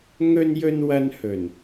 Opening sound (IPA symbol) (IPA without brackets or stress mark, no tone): ŋ